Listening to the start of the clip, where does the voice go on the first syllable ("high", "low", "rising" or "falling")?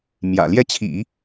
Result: low